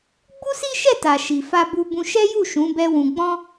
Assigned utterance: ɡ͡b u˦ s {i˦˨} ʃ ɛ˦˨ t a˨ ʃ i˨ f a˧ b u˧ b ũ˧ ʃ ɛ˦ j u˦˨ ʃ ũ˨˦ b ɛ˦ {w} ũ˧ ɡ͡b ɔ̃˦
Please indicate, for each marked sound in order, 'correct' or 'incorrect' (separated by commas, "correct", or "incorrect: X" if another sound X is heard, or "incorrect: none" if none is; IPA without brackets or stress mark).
incorrect: i˦, correct